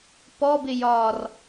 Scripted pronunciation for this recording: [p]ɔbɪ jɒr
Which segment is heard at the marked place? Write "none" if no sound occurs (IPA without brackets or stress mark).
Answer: p